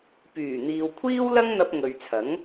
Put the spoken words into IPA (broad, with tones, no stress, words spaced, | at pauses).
pyː˨˩ n̪iː˨wkʷʰiː˥w lɐ˥ŋn̪ɐ˧p̚ ŋɵ˨ɥt͡sʰɐ˨˥ŋ